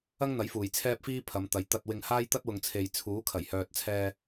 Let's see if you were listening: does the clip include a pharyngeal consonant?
no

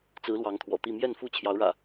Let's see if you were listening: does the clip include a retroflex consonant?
yes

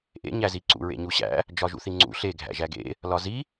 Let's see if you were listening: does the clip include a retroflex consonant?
no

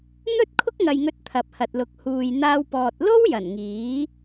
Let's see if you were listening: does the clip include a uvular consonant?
no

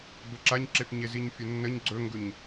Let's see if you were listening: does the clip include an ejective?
no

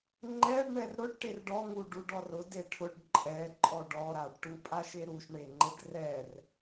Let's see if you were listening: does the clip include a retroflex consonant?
yes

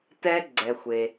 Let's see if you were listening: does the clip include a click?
yes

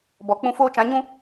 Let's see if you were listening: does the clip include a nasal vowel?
yes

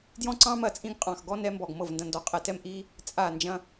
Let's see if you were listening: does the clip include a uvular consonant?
yes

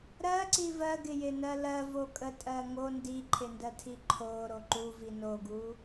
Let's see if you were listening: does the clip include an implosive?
no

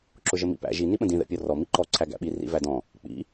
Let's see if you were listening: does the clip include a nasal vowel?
yes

